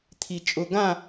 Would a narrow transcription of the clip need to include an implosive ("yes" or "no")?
no